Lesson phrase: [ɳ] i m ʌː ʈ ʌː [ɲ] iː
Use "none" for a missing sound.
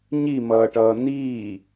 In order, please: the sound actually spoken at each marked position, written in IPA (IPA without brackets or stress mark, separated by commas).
ɲ, n